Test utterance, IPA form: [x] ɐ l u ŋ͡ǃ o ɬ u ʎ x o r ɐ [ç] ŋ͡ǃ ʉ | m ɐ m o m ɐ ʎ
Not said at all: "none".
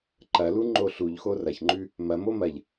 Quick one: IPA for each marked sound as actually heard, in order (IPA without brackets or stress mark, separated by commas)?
ǃ, ç